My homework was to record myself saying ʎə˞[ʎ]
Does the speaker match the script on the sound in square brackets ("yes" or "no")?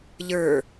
no